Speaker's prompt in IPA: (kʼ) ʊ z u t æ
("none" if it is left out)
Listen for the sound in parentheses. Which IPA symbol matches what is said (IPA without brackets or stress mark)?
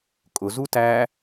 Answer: kʼ